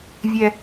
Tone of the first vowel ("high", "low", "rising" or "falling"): high